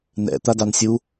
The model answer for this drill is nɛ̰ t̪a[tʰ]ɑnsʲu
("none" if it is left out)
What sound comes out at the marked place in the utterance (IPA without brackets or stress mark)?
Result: d